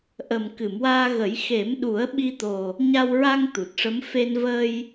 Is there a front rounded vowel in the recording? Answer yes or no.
no